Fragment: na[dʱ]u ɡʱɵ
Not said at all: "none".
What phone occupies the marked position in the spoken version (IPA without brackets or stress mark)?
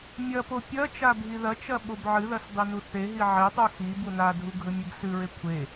dʱ